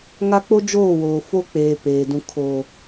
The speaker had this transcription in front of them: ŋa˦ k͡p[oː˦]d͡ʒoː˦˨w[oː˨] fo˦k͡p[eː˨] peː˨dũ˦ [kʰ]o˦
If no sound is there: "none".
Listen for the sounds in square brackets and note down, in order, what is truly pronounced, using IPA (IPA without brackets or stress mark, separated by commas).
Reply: o˦, oː˨, eː˨, kʰ